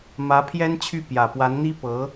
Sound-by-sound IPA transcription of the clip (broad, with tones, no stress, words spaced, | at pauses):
mä˧˥ pʰjɛ˥nt͡ɕʰy˥˩ pjä˨˩pwa˧˥nn̪i˥ pɤ˧˥